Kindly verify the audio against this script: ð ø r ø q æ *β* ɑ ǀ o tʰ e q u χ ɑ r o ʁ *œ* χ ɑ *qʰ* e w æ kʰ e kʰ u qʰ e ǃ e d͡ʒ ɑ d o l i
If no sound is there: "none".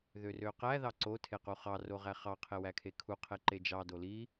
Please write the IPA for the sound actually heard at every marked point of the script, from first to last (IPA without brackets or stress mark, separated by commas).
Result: ð, æ, qʰ